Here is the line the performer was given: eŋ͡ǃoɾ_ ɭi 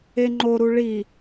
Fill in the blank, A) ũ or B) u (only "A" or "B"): B